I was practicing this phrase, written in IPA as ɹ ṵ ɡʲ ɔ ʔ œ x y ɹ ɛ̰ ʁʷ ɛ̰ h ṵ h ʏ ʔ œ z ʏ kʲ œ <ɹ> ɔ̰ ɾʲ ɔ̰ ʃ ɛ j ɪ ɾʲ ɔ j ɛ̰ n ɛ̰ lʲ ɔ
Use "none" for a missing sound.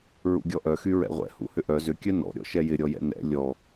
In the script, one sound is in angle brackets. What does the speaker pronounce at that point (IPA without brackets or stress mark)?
n